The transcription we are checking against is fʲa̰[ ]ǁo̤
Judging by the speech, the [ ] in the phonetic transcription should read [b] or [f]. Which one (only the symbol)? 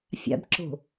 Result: b